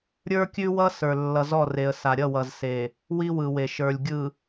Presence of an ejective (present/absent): absent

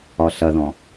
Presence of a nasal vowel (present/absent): present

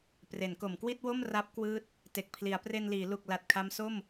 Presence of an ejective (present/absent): absent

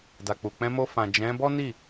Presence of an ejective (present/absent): absent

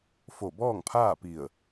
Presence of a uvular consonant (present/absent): absent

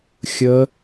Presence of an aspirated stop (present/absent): absent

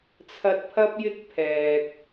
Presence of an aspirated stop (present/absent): present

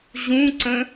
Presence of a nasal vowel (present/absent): present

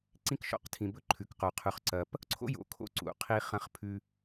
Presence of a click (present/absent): present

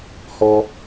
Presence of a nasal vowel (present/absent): absent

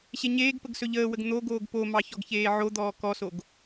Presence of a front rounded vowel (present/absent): absent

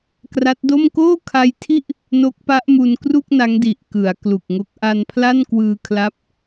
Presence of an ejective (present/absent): absent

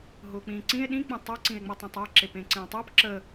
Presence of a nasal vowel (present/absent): present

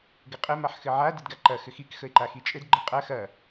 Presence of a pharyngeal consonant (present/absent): present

